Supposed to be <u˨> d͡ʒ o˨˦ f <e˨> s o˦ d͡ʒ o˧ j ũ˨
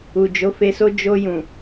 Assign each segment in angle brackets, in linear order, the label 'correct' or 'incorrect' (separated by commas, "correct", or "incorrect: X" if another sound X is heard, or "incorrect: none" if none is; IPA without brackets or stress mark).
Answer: correct, incorrect: e˧